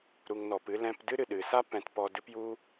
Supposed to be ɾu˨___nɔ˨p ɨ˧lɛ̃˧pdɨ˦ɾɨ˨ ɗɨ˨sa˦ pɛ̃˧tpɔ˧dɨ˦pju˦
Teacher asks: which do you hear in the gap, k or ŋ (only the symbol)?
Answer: ŋ